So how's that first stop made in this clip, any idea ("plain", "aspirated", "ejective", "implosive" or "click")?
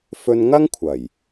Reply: aspirated